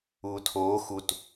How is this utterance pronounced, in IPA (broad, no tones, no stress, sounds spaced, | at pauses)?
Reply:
uː tʰ oː x u t